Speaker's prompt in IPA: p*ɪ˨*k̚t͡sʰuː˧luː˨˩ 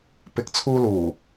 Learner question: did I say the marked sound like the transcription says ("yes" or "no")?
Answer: yes